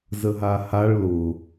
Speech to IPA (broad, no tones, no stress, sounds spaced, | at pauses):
z ə ɦ a h a ɭ l ʊ